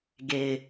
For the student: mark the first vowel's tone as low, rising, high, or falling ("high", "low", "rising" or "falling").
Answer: low